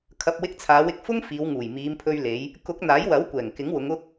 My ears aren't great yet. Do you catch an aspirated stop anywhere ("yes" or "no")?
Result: yes